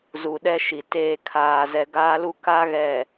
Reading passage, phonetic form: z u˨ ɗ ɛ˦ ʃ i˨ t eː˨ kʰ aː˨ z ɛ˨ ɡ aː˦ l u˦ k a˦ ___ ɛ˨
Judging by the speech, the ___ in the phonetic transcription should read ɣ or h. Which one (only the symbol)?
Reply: ɣ